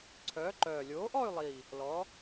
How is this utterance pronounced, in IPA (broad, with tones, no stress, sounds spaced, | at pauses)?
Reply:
ǀʰ œː˨˥ ǃ œː˨˩ lʲ oː˨˥ ʔ ɔ˥˧ y̯ lˠ i˨˩ | l ɔ˨˥